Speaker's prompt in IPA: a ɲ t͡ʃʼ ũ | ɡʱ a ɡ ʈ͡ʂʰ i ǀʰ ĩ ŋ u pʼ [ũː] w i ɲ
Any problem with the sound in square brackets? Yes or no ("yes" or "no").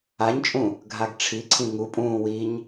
no